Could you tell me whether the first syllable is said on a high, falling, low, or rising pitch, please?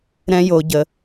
high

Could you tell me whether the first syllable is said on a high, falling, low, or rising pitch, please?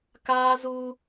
high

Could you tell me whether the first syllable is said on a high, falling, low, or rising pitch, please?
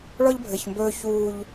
high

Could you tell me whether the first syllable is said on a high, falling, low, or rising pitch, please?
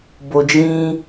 low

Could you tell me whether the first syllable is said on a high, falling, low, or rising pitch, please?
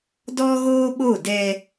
high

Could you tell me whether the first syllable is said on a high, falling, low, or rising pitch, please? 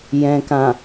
low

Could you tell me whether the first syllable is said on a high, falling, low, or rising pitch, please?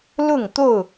falling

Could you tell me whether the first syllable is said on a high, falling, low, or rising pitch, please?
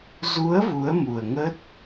rising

